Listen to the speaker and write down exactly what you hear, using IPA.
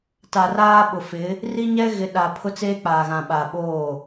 t a˨ r aː˦ ɓ ʊ˨ f ɪ˨˦ | r i˦ ɲ ɛ˦ ɣ ɪ˨ ɗ a˨ pʰ ʊ˦ t͡s eː˦ k͡p aː˨ ɣ ã˨ ɓ a˨ ɓ oː˦˨

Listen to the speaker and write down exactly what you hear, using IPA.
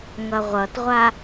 ŋ ʌ ʁʷ ʌ t ʁʷ a

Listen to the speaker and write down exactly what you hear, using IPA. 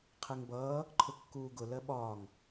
qʰ ɛ ŋ b ʌː | ǃʰ ʊ kː uː ɡ ʊ l ɜ ɓ ɒː ŋ

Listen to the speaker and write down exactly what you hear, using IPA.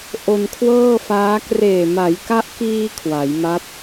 ʔ o˧ n kʰ w ɤː˥˩ f aː˦˥ k r eː˨˩ m a˩˦ j k a˦˥ ʔ k iː˧ kʰ w a˩˦ j m a˦˥ p̚

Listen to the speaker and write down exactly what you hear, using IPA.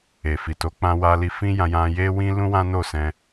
e˨ f i˨ t o˨˦ k͡p ã˧ w a˧ l i˧ f ĩ˦ j ã˧ j ã˧ j e˦ w ĩ˦ l ũ˦ w ã˦ n o˦˨ s ɛ̃˧

